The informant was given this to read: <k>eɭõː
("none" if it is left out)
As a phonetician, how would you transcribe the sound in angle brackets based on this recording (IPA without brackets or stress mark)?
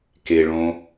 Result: k